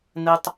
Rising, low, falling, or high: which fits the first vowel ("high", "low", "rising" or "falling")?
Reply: high